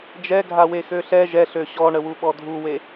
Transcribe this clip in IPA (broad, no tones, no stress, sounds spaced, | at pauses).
d͡ʒ ɛ ɡʱ a w e x ø ɬ ɛ ʒ ɛ ɬ ø ɕ ɔ ɳ ə w u ɓ ɔ dʱ u w e